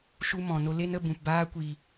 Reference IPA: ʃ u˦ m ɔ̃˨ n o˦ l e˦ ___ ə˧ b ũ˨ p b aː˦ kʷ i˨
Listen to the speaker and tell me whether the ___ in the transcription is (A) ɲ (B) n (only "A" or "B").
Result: B